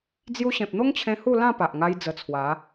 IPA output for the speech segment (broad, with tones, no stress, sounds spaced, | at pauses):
d͡z j u˧ ɕ ẽ˨ p̚ n̪ o˦ ŋ t͡ɕʰ ẽ˧ h u˥˧ l ã˥˧ p a˨ ʔ ŋ a˧ j d͡z ə˧ t͡sʰ w a˨˦